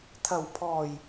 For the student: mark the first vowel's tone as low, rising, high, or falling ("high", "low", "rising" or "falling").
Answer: low